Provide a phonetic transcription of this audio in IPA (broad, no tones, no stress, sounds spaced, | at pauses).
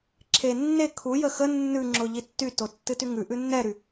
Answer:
ǁʰ e nː e kʰ u j ə x ə nː ʉ ŋ͡ǁ ʊ ʎ i tː y t o tː ɨ t y ŋ ʉ ʔ ʉ nː ɛ ɾ y